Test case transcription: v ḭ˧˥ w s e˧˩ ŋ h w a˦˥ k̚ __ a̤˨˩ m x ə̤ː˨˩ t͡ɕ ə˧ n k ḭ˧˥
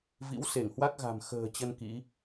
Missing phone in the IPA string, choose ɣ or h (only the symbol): ɣ